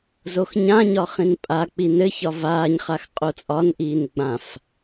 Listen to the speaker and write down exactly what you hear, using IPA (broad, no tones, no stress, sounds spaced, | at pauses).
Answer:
z o x ɲ ã ɲ ɒ χ ĩ n pʼ a k͡p i n ɘ ç ɒ v aː ɲ χ a x qʼ o t͡sʼ ɒ n ʔ iː n ɡ͡b ã f